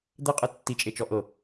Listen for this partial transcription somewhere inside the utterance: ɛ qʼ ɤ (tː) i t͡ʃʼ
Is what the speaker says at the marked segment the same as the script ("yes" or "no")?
yes